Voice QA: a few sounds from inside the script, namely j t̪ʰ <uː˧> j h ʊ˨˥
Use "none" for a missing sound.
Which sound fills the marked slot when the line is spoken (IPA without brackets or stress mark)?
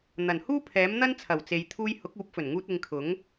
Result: uː˧